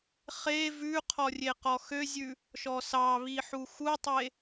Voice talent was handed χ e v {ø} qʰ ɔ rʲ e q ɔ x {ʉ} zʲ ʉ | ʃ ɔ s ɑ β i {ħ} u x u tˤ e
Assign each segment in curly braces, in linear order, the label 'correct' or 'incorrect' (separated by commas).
incorrect, incorrect, correct